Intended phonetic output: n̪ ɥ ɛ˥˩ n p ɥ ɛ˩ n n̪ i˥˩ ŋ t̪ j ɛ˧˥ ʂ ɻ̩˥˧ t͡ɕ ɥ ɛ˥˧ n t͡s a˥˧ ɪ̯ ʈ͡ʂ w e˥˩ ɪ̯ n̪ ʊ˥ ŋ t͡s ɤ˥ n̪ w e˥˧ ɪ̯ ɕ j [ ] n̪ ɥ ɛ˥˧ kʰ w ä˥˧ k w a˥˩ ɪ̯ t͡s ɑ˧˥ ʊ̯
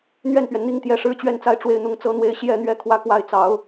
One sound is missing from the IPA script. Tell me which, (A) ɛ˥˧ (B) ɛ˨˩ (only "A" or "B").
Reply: A